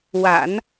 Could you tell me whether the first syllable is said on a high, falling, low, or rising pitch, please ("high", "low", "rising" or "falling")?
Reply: low